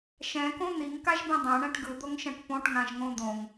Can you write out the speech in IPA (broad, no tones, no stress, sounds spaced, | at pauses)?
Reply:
ʃ ɛ̃ k õ n̪ i ŋ k a ʒ b ĩ dˤ ɛ̃ ɳ ɛ̃ ʈ ɡ ɯ d̪ o ŋ ʃ ɛ̃ ʈ p õ ʈ ŋ ã ʒ ŋ õ d̪ õ ŋ